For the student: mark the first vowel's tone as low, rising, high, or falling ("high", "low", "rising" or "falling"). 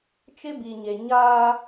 high